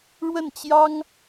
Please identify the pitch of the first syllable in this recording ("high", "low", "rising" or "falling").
falling